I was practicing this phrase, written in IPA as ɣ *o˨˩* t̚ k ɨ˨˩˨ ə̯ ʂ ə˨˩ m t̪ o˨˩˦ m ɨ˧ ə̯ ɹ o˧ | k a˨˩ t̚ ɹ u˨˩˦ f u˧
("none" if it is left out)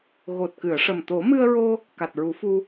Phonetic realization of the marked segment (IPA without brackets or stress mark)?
o˨˩